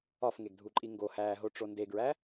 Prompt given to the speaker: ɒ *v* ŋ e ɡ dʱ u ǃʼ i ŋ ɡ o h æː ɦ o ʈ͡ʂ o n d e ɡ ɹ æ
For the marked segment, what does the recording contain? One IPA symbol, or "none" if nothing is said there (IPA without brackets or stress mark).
f